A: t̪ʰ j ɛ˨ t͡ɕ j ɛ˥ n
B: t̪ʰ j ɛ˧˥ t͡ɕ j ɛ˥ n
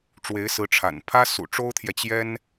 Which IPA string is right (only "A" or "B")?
A